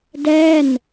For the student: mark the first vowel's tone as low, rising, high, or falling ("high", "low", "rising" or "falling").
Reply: falling